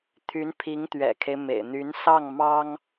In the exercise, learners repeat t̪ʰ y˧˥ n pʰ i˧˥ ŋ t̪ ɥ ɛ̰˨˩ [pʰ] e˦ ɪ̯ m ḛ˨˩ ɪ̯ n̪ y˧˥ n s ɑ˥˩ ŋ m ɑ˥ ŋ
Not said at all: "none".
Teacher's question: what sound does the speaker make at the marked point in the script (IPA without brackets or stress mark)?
kʰ